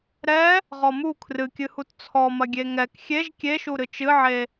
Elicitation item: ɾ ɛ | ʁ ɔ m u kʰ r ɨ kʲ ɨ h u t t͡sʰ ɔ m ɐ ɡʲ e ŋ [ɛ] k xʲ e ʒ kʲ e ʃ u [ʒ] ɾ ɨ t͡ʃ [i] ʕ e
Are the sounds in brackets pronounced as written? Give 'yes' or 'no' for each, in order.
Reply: yes, no, no

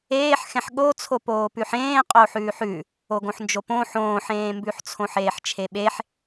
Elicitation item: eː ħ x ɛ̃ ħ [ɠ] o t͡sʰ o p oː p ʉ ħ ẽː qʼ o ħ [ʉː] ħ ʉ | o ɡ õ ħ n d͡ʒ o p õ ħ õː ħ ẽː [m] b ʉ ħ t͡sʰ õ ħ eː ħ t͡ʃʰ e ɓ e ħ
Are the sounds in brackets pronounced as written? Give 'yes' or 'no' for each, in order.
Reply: yes, yes, yes

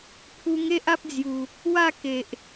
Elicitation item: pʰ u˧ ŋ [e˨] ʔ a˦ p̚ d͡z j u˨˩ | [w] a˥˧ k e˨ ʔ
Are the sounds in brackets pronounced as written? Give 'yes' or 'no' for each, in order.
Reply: no, yes

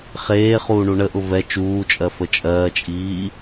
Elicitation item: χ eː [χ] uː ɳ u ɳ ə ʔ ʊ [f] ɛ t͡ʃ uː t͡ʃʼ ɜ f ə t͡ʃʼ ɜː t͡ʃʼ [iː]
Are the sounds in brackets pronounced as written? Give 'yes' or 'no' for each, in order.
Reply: yes, no, yes

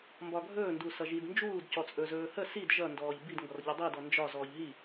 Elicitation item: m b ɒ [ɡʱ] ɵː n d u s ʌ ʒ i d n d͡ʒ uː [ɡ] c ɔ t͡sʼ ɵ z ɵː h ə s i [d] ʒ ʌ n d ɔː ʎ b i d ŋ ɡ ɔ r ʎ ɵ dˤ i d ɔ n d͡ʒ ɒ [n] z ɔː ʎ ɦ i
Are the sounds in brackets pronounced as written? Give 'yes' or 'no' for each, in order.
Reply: yes, no, yes, no

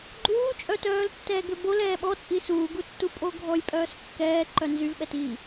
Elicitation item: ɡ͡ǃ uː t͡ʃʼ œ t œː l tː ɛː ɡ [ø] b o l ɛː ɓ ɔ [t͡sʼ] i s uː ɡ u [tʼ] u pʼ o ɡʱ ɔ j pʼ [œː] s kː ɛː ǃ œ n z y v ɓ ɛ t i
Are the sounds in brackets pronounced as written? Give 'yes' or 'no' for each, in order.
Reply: yes, yes, no, yes

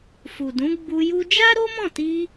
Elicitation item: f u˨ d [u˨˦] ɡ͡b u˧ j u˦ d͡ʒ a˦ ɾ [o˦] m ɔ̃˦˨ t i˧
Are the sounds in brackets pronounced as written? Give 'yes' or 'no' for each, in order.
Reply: no, yes

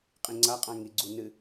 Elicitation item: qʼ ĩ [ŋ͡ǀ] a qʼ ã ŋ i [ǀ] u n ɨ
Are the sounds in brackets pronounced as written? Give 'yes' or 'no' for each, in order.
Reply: yes, no

